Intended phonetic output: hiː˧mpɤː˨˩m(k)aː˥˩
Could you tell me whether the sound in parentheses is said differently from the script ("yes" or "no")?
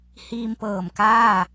no